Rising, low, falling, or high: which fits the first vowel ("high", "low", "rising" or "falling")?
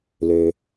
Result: low